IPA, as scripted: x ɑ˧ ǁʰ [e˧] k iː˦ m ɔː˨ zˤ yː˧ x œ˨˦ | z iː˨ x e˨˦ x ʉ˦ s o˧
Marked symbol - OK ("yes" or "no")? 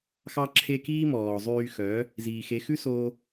yes